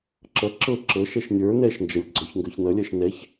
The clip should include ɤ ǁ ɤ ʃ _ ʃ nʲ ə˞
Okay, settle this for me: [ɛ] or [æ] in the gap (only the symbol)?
ɛ